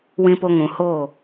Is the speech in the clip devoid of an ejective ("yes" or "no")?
yes